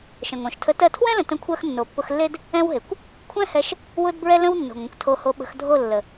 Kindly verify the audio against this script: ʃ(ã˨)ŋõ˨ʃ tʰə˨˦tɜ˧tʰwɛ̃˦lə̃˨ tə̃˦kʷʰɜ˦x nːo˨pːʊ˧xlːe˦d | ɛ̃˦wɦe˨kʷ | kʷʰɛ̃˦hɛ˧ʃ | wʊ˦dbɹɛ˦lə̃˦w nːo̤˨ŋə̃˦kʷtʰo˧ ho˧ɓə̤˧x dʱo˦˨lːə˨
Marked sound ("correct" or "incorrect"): incorrect